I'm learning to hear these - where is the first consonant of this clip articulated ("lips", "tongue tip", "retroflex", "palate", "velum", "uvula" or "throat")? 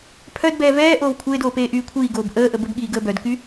lips